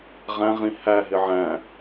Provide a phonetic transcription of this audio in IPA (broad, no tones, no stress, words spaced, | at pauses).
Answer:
ʁæ̃ʁĩ hæɦɪ ʕæ̃